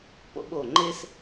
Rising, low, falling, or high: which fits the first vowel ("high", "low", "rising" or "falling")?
high